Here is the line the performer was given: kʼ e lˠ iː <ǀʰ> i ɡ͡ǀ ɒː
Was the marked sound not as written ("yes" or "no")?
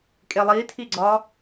yes